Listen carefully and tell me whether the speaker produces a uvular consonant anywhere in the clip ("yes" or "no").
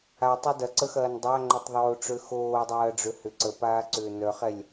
yes